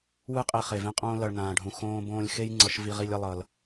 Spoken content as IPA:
wɯ˦qʼe˧ χe˨vẽ˦qʼõː˦ lʌ˨ɭ nãː˨ɖʱũ˨ xõː˧ bõː˧lʲxe˦jŋ͡ǀʌ˨ʃ vi˧ʁi˧lʲʌ˧lˠʌ˨l

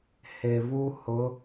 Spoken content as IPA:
he˨vu˦ hʊ˨˦

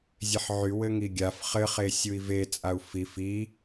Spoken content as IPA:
zʲeħʕy wɘŋiɡʲaf χɘχe sʲui̯vet͡sʼau̯ fif i

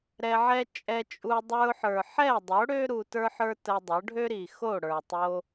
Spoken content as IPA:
ɾɛ˧ʕɛ˦ t͡ʃʼɛ˧t͡ʃʼu˧ dˤə˞˧ʊ̯ħə˞˨ ħɛ˦˨dˤo˨˦ɽø˦ ɾu˧tə˞˦ħə˞˦ tə˧dˤo˨˦ ɖʱø˦ɾi˨xo˦˨ ɽə˞˨tˤo˧

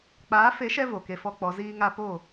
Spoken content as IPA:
k͡paː˨˦fe˨˦ʃɛ˧ vo˨ke˧fɔ˦k͡pɔ˨˦ ziː˧ŋa˧ po˦˨

